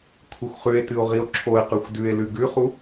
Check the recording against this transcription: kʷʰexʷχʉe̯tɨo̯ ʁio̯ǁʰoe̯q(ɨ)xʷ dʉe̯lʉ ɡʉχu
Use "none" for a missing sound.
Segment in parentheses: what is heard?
ʉ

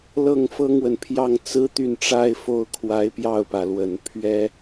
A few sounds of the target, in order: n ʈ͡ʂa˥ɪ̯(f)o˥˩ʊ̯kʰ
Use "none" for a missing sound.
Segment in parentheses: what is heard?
f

